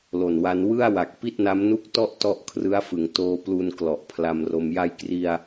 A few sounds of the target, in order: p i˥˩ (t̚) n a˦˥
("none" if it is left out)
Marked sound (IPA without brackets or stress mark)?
t̚